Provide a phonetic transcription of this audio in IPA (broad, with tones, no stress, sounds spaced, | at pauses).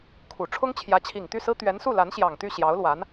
kʰ u˨˩ ʈ͡ʂʰ ʊ˥ ŋ t͡ɕʰ j ä˧˥ t͡ɕʰ i˨˩ ŋ t̪ y˥˩ s ɹ̩˥ t̪ ɥ ɛ˧˥ n s u˥˩ l a˧˥ n ɕ j ɑ˨˩ ŋ t̪ y˥˩ ɕ j ɑ˧˥ ʊ̯ l w a˧˥ n